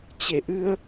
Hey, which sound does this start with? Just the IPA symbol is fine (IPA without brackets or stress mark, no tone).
t͡ɕ